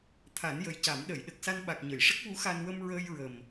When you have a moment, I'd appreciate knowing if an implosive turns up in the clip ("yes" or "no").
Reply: yes